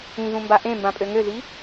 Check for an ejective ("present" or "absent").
present